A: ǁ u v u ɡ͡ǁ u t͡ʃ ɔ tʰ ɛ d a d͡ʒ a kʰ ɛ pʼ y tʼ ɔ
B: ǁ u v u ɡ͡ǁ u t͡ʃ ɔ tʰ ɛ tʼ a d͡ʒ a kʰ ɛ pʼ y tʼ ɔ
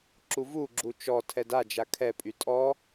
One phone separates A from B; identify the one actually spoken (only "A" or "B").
A